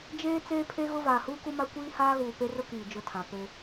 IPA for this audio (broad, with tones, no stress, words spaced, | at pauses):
d͡ʒeː˦ t͡seː˦pʰe˦ɣʊ˦ vaː˨huː˦ku˦ma˦ kʷiː˦ haː˦ɣuː˨pe˦rʊ˦ kiː˨d͡ʒʊ˦˨tʰã˨ pe˦